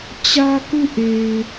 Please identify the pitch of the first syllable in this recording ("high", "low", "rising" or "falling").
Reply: high